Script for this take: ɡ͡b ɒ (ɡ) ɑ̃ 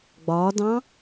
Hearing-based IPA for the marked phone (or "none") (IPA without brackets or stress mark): d